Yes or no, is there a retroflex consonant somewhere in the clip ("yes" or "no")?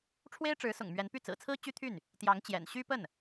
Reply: yes